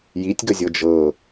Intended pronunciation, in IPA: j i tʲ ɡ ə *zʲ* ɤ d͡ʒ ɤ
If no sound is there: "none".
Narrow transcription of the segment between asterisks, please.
zʲ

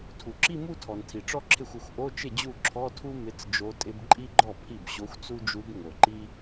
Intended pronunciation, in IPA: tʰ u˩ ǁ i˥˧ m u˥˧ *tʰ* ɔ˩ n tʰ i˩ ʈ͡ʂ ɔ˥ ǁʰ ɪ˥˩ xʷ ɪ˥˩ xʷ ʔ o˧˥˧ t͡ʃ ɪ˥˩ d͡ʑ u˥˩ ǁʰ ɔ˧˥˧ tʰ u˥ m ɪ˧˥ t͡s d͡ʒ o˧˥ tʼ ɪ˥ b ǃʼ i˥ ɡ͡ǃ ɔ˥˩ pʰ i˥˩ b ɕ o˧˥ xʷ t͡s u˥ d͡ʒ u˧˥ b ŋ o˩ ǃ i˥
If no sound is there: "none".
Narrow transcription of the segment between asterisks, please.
tʰ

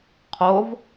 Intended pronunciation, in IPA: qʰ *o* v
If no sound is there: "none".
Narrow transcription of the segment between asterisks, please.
o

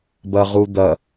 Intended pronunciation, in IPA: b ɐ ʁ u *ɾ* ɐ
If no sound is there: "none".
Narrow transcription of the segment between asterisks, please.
d̪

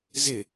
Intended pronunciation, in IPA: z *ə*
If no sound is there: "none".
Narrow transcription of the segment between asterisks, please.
ɪ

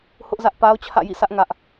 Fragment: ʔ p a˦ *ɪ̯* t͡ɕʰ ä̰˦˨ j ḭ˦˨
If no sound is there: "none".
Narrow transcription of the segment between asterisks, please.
ʊ̯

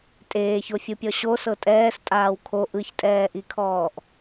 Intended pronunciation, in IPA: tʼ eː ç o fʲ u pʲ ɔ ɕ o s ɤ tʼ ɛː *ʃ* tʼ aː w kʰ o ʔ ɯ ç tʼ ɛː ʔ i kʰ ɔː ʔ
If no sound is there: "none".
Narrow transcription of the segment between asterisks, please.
s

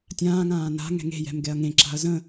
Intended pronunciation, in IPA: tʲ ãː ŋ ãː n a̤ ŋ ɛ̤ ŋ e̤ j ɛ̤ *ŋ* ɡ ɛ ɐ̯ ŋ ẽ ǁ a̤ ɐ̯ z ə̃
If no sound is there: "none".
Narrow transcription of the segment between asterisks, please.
m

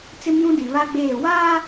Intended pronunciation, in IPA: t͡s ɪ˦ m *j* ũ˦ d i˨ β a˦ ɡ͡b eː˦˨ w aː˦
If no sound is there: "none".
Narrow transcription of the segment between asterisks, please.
j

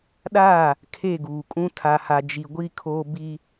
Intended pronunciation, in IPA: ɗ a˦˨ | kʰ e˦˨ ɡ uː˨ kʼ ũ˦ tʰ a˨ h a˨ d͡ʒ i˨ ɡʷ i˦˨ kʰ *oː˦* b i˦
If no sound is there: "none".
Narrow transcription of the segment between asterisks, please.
oː˦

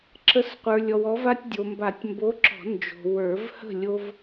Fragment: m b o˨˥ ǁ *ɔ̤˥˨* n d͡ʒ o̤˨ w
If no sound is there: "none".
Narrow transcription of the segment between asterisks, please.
ɔ̤˨˩˦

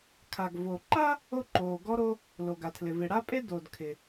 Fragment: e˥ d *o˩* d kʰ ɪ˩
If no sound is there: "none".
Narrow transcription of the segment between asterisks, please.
o˩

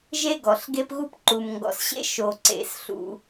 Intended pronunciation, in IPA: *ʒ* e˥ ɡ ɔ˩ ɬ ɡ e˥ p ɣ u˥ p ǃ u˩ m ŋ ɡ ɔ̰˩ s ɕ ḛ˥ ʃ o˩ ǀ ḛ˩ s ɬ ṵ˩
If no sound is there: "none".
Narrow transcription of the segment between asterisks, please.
ʒ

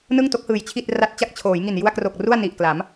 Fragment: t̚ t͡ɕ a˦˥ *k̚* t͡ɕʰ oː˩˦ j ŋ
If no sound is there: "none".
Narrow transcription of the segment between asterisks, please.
k̚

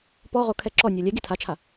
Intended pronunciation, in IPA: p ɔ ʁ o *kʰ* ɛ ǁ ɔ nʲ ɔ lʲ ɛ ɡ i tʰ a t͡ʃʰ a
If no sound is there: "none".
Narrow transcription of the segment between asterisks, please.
kʰ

